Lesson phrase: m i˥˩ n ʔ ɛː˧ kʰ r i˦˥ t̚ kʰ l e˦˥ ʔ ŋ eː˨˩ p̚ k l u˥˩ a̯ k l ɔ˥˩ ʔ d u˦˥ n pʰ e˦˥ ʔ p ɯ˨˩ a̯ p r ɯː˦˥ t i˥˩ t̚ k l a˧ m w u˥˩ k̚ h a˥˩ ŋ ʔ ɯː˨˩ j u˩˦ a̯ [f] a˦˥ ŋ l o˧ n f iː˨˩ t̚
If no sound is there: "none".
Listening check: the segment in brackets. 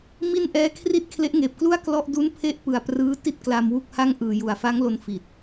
f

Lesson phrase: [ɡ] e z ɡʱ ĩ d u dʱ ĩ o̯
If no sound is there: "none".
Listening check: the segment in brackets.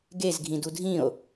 ɡ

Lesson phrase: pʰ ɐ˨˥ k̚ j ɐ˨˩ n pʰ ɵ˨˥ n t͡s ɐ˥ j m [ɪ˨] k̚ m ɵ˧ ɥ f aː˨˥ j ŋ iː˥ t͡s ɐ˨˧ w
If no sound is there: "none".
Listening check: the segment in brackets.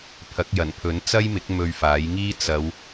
ɪ˨˥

